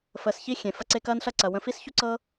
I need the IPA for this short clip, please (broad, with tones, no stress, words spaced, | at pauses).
fəː˨sçi˦ xʲẽ˩fɐ˦ ǀe˦kɐː˥nɬɐ˥ ǀɐ˩wə̃˨fi˦s çu˥ǀɤ˥